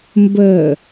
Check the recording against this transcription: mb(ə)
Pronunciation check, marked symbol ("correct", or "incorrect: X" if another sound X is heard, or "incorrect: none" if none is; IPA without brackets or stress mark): correct